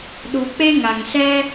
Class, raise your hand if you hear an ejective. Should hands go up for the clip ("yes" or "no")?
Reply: no